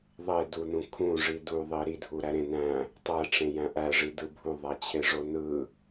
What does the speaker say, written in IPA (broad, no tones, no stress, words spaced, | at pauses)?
ðˤedunũ kʰũʐi duðˤi ɾidʱuɾæ ɾẽ næ̃ | tˤæʈ͡ʂẽjæ̃ ʔæʐidɯ bʱuðˤæt͡ɕʰeʐo nɯ